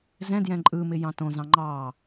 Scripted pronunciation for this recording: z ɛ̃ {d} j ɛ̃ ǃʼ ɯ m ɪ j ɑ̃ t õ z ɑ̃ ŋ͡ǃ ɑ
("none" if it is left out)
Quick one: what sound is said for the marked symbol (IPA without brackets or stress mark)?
d